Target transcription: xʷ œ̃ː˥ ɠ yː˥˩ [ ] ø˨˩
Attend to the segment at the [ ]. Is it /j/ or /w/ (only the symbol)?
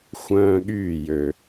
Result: j